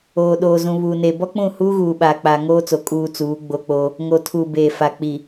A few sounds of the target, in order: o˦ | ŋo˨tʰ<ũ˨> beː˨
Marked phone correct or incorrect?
incorrect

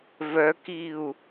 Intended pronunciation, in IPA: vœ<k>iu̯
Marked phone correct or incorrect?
correct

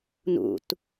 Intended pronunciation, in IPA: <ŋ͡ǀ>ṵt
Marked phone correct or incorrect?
incorrect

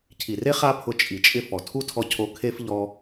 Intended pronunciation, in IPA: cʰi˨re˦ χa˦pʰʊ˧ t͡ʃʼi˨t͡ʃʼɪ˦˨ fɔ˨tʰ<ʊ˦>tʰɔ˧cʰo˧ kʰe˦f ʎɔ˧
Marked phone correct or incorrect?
incorrect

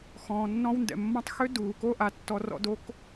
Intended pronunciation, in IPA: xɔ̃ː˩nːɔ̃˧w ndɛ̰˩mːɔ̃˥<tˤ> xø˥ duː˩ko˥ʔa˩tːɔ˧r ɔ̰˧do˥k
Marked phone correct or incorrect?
correct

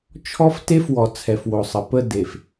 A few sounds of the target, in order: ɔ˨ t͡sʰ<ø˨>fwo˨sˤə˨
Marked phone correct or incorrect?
incorrect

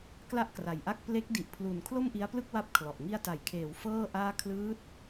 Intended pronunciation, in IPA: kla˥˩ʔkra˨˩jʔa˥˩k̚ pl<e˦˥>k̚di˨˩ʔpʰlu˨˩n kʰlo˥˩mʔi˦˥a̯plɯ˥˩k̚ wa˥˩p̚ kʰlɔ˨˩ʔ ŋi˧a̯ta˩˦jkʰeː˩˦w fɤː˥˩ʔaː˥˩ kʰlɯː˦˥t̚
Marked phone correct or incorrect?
correct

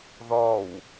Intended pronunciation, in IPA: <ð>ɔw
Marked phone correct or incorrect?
correct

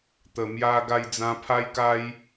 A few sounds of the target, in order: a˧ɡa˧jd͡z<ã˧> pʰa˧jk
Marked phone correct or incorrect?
correct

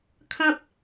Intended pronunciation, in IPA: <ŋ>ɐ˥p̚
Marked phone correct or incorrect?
incorrect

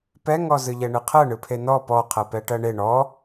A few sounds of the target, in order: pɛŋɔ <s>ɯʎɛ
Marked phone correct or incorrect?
incorrect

